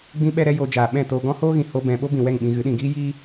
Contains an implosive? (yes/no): yes